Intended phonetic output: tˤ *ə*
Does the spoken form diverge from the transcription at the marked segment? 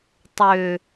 yes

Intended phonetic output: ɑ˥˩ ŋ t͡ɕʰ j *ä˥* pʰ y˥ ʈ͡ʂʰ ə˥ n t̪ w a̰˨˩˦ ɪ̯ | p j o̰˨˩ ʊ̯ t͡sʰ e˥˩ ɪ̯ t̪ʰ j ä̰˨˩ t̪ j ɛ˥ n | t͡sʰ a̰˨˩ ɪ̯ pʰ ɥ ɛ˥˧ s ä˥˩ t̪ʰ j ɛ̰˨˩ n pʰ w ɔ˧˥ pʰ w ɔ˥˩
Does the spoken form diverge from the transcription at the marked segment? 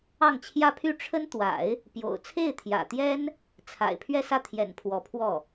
no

